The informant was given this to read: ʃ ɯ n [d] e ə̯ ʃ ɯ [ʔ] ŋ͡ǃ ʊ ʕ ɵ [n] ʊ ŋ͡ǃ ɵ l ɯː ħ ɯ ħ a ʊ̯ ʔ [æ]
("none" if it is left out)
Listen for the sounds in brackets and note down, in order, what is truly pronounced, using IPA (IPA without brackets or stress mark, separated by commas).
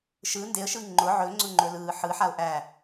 d, none, ŋ͡ǀ, æ